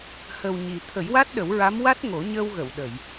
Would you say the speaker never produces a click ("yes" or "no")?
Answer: yes